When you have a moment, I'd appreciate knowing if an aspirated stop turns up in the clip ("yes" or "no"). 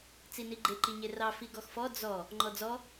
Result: no